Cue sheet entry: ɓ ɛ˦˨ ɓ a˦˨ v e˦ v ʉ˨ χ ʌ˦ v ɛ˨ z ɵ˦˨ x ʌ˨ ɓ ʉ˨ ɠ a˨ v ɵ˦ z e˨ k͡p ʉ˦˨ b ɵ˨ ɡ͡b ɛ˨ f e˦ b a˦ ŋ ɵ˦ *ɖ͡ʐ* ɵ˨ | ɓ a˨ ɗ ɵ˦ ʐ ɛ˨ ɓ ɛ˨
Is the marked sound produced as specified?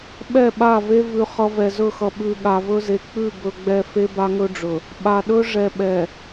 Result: yes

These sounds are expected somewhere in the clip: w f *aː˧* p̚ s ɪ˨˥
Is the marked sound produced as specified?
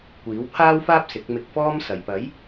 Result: no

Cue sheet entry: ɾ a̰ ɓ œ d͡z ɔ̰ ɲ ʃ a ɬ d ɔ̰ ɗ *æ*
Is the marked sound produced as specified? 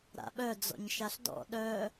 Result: no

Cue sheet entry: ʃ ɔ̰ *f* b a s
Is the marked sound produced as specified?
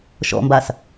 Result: no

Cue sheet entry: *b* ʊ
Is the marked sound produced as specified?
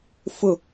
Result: no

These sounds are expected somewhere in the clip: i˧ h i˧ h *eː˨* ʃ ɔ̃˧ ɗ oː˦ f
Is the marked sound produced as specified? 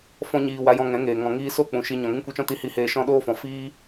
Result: no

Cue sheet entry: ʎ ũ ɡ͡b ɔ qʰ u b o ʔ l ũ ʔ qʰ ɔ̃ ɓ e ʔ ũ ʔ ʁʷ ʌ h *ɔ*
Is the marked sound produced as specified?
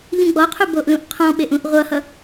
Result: no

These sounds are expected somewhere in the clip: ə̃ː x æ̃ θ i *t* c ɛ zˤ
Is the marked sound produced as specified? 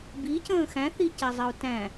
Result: no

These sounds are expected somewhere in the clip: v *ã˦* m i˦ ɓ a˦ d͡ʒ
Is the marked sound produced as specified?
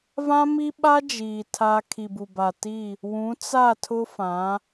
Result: yes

